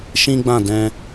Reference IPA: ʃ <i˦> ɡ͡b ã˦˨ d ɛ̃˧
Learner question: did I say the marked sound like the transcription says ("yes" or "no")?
no